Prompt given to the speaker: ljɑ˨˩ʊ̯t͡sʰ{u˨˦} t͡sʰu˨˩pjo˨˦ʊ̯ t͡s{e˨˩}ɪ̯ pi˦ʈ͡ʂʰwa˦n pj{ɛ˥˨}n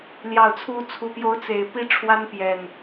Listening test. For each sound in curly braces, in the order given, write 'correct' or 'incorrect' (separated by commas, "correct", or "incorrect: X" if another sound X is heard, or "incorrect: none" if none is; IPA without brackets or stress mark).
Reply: correct, correct, incorrect: ɛ˨˩